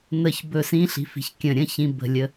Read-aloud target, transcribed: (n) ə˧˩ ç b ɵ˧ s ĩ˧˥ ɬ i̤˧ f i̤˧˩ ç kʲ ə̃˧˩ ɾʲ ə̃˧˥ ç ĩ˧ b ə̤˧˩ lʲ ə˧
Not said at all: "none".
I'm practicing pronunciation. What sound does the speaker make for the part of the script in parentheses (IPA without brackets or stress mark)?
n